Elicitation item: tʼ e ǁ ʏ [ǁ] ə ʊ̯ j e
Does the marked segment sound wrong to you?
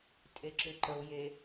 yes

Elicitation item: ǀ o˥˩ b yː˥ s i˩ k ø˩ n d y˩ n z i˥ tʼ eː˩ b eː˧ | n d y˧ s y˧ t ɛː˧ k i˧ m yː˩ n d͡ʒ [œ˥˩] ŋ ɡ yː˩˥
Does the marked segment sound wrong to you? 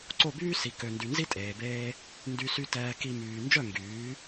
no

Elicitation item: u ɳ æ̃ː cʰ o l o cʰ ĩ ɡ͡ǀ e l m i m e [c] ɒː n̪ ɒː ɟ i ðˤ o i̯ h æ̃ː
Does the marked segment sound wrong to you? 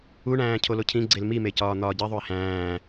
no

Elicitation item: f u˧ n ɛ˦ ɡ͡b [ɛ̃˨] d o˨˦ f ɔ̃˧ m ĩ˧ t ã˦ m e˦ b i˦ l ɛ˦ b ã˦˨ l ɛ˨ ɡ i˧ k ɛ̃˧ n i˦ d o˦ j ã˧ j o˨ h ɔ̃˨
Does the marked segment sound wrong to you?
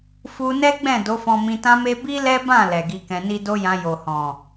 yes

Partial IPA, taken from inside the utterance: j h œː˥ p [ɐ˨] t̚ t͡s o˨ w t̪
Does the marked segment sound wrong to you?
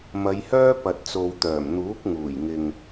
no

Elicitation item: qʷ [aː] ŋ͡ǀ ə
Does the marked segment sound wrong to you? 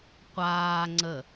no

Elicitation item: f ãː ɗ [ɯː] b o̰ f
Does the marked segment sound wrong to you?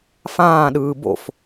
no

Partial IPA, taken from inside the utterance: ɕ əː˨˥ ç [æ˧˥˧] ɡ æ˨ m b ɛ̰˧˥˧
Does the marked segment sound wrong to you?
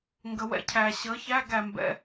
no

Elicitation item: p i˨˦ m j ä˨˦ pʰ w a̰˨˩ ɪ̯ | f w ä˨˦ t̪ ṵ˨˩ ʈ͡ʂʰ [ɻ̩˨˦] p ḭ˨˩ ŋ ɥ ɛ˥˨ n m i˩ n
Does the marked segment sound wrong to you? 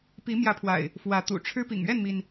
yes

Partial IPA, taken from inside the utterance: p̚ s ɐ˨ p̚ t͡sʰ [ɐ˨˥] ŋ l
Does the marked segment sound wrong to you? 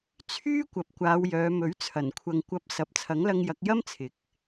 no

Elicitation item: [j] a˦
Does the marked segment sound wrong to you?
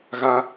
yes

